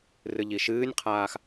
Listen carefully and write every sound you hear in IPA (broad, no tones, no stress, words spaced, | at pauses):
rɨʎiʃɨːnʲqʰaːx